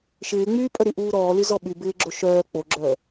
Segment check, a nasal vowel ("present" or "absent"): absent